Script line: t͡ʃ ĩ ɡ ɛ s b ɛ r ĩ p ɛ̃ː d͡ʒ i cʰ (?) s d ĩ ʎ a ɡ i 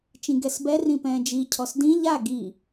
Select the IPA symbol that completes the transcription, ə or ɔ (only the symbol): ɔ